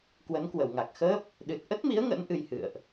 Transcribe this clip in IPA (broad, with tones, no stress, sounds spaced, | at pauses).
k w ə˨˦ n k w ə˧˩ w ŋ a˨˩ k̚ x əː˦˥ p̚ | ɗ ɨ˨˩ t̚ ʔ ə˦˥ t̚ m i˨˦ ə̯ ŋ ə̰˧˥ n ʔ ɨ˧ j h ɨ̰˧˨ ə̯ ʔ